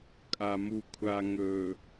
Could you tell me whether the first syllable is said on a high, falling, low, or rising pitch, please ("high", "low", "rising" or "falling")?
low